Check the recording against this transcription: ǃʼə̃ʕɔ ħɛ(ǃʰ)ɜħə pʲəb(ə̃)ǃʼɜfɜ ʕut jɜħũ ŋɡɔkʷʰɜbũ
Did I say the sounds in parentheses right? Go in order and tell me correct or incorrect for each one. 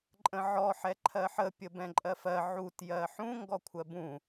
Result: correct, incorrect

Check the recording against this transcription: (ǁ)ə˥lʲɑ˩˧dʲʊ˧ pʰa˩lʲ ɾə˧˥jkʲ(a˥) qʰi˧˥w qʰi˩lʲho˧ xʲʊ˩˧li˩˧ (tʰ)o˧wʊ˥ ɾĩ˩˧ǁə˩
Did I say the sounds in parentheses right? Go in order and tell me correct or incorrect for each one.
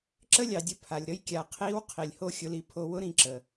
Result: correct, incorrect, incorrect

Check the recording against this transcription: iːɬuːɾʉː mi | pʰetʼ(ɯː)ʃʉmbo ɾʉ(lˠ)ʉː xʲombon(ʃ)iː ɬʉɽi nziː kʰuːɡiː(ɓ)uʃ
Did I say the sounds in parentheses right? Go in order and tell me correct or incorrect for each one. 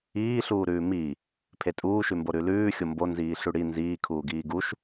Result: incorrect, incorrect, incorrect, incorrect

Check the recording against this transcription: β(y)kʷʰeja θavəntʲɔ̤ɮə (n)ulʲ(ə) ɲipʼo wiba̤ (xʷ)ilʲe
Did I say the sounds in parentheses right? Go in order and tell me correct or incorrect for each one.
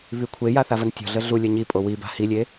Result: correct, incorrect, incorrect, incorrect

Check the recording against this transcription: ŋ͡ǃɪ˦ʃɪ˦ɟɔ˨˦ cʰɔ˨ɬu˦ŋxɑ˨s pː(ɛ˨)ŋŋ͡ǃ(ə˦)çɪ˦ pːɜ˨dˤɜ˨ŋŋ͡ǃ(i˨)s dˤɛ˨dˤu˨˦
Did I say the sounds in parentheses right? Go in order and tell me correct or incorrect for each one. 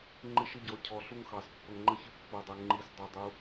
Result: incorrect, correct, correct

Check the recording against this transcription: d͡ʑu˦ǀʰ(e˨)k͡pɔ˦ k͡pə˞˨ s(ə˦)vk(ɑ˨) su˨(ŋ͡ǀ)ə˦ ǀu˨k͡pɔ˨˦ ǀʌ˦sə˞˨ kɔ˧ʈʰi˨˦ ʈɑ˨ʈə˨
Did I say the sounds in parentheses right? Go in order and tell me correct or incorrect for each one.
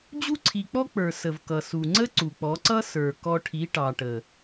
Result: incorrect, incorrect, incorrect, correct

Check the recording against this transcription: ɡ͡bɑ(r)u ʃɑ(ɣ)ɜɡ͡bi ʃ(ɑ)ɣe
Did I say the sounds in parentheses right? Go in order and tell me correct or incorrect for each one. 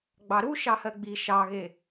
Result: incorrect, incorrect, correct

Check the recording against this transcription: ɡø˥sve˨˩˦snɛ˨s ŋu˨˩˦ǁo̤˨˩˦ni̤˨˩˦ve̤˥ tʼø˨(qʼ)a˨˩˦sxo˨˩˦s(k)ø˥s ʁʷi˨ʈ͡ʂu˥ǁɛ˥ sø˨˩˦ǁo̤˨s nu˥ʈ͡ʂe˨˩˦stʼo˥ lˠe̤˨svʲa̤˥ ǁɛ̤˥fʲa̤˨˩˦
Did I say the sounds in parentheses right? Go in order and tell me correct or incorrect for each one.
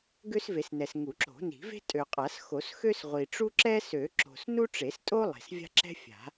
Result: correct, incorrect

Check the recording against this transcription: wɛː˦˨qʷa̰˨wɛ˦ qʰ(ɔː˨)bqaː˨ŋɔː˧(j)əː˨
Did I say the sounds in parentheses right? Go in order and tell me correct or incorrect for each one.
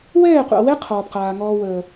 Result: correct, incorrect

